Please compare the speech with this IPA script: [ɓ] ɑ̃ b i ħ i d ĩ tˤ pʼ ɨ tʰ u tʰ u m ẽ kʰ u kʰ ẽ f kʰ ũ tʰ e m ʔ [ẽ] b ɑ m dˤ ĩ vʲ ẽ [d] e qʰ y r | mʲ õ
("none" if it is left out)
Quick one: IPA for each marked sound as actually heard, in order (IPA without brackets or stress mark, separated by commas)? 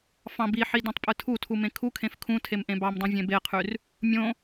f, ẽ, b